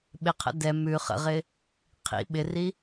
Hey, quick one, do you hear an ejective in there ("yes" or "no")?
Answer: no